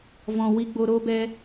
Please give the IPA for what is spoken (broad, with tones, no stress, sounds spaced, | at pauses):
v ɔ̃˨ w i˧ ɡ͡b o˧ ɾ o˦ b ɛ˦